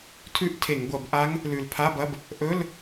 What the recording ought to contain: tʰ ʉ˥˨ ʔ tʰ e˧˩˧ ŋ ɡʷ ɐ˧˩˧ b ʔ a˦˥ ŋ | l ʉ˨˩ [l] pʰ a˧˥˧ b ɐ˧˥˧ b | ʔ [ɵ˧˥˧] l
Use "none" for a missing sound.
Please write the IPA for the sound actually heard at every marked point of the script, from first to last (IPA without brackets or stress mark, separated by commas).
l, ɵ˧˥˧